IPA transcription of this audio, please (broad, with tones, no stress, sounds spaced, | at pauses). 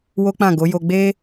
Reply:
w o˦ k͡p ã˦˨ ɡ o˨˦ j o˧ ɡ͡b e˦